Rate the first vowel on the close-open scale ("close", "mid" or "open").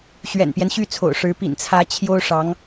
mid